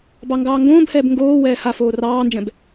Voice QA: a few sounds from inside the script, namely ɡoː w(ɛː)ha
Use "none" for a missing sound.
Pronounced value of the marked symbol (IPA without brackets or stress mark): ɛː